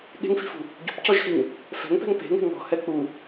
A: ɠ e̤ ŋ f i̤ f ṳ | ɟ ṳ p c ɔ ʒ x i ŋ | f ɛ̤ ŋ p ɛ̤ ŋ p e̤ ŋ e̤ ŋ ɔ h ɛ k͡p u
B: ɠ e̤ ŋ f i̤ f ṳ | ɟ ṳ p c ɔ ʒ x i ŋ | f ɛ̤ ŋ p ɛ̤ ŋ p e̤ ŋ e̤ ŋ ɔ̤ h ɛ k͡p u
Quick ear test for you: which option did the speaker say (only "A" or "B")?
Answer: B